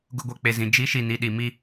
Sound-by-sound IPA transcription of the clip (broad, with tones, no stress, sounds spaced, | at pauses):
ɡ ʊ˨ ɡʷ ɛ˨ k͡p e˨ z ĩ˨ d͡ʒ i˨˦ ʃ i˨ n i˨ ɗ i˨ m i˦